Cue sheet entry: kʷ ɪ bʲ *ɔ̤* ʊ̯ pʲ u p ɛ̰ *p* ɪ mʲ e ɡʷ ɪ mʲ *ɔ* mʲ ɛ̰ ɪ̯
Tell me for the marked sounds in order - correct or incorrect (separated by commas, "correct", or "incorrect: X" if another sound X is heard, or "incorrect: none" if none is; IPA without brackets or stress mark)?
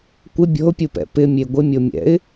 correct, correct, incorrect: o